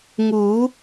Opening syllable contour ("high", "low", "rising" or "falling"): rising